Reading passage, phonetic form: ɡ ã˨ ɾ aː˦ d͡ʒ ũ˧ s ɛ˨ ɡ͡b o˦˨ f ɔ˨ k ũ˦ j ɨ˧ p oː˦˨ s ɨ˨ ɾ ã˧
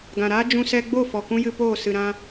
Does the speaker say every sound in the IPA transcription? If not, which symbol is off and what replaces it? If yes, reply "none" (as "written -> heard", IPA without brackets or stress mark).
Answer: ɛ˨ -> ɛ˧